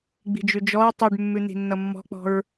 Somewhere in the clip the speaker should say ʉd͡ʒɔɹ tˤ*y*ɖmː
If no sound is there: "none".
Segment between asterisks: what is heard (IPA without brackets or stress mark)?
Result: y